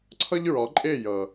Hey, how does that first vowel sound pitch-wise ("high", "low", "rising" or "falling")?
high